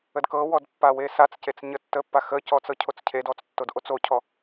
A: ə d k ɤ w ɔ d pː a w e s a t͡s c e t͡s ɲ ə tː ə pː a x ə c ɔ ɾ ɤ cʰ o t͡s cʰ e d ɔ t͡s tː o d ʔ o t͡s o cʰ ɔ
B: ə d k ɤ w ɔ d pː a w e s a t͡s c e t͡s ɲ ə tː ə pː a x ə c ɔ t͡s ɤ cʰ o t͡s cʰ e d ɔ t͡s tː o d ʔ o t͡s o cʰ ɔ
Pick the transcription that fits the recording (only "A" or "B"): B